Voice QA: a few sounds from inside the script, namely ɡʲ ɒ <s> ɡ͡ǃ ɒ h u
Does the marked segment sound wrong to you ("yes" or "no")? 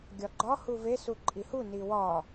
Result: yes